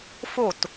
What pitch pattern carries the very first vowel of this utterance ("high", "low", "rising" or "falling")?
falling